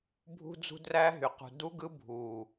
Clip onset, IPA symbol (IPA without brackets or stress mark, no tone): bʱ